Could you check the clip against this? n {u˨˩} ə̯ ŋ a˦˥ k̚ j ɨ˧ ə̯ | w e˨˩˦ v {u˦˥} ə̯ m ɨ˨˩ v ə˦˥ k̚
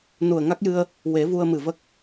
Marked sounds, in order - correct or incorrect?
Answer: correct, incorrect

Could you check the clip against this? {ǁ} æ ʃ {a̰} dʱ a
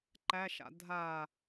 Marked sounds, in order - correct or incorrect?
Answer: incorrect, correct

